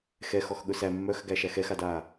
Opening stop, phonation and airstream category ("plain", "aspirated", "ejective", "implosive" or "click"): implosive